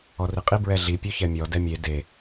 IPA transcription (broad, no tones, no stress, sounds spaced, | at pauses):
ɔ r i qʼ i b ɹ ɛ ɮ i pʲ o ç ɛ mʲ ɔ d ɛ mʲ e d e